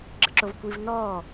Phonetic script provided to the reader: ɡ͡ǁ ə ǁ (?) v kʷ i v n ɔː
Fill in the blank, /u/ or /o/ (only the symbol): o